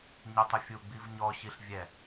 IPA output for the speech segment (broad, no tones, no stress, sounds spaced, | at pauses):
ɲ e tˤ ʊ fʲ u ɡ͡b i v ɲ ɔ ɕ i ɬ vʲ ɛ